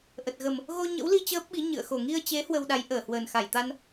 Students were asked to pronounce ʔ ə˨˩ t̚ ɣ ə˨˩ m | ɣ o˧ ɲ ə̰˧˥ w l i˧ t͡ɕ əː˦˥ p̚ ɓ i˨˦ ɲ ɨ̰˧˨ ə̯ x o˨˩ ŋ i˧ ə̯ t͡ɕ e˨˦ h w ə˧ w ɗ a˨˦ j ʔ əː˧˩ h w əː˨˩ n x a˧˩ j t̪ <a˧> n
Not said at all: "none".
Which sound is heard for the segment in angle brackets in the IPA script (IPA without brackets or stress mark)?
a˧